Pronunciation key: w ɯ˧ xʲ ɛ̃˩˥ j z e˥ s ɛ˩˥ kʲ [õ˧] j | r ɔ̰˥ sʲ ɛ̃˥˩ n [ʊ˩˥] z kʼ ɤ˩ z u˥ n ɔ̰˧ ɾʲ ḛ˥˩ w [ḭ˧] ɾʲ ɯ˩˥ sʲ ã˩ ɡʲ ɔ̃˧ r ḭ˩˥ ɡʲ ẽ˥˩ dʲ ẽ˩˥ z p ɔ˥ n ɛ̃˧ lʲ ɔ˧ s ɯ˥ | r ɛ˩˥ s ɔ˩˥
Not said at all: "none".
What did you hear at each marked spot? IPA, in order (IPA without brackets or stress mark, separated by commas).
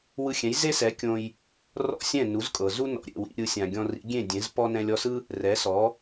õ˧, u˩˥, ḭ˧